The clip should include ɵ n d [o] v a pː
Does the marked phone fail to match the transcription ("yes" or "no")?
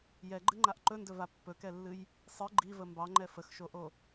yes